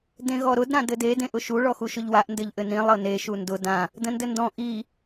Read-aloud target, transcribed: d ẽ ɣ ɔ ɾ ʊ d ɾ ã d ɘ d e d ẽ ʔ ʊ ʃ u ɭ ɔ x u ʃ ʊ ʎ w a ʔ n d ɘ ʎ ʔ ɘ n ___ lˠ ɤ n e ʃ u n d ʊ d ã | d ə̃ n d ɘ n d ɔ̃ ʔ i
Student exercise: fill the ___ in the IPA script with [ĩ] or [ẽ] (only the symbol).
ĩ